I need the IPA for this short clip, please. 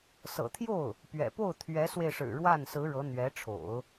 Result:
s ɤ̰˨˩ t̪ʰ j o˥˩ ʊ̯ | p ɥ ɛ̰˨˩ p o˥˩ ʊ̯ t̪ʰ ɥ ɛ˧˥ s w e˧ ɪ̯ ʂ ɻ̩˨˩ ɻ w a˥˩ n s ɹ̩˧˥ ɻ ɤ˧˥ n̪ ɥ ɛ˧˥ ʈ͡ʂʰ o̰˨˩˦ ʊ̯

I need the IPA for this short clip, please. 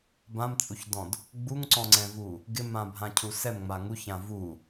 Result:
b ã m t͡sʼ u ç d ɔ̃ d | ɡ͡b u ŋ ǀ ɔ̃ ŋ͡ǀ ɛ̃ v u | ɡ ɪ m ã bʱ ã cʰ u s ɛ m ŋ͡m a ŋ u ç ã v u

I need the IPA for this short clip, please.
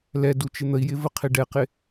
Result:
l ɛ d u t͡ʃ ɪ n̪ ə i̯ j ɪ v ə qʰ ɪ ɖ ɛ q ɪ

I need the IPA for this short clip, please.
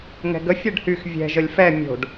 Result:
ŋ ɛ̤ ɡ ə fʲ ɛ ɖ h y x vʲ ɛ̤ ʒ ə lʲ f ɛ mʲ o̤ ɖ

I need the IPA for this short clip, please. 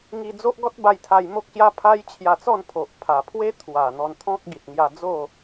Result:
ŋ i˧ d͡z o˦ ʔ ɡ ɔ˦ t̚ b a˧ j t̪ʰ a˧ j m o˦ k̚ ɕ j a˦ pʰ a˦ j t͡ɕʰ j a˧ t͡s ɔ˥˧ n pʰ o˨ ʔ pʰ a˨˩ pʰ w e˦ t̪ʰ w a˨˩ n̪ ɔ˧ n t̪ʰ ɔ̃˦ k̚ ɡ i˨ t̚ ŋ j a˧ d͡z o˥˧

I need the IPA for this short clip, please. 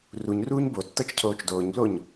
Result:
r u ɲ r uː ɲ b o tː ɤ t͡ʃ cʰ oː t͡ʃ d oː ɲ b l o ɲ

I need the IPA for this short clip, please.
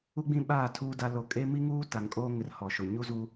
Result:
u˦ ɡ͡b ĩ˦ ɓ aː˦˨ tʰ uː˦ d a˦ l o˦ kʼ e˦ m i˦ ŋ uː˦ t a˨ ŋ kʼ oː˦ ŋ ɪ˨ r h ɔ˨ ʃ ʊ˨ ɲ u˦ z uː˦

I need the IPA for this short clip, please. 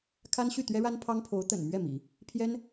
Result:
kʰ a˥ n ɕ y˥˩ t̪ ɥ ɛ˥ ɻ a˥ n pʰ ɑ˥ ŋ pʰ o˧˥ ʊ̯ t̪ ə̰˨˩ n m ɥ ɛ˥˩ m ḭ˨˩˦ | pʰ j ɛ˥ n

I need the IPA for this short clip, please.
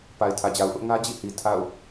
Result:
p a˨ ɪ̯ tʰ ä˨ d͡ʑ a˨ ʊ̯ ʔ ʊ˦ ʔ ŋ ä˦ d͡ʑ ḭ˦˨ h i˨ tʰ a̰˦˨ ʊ̯

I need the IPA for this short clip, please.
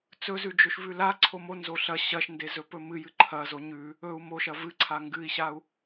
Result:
t͡s ɵ z ʉ d͡ʒ ɵ ʃ v ʉ l a ǀʰ o m o n z o ɬ ɐ ɕ ɐ ʃ n d e z ɵ p ɵ m ɨ j ɨ ǃʰ ɐ z o ɲ ʉ | ɵ u̯ m o ʃ ɐ v ɨ ǀʰ a ŋ ɡ ɨ i̯ ɕ a u̯

